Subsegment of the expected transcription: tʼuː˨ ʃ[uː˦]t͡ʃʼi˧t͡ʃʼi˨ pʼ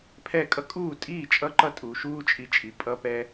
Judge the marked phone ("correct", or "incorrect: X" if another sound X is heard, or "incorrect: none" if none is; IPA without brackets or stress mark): correct